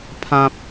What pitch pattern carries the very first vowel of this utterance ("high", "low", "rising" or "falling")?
high